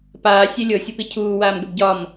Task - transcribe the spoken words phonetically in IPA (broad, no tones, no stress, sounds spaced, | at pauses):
p aː sʲ e lʲ ɤ sʲ ʊ p i cʰ uː w aː m ɡ ə b ɟ ɒ m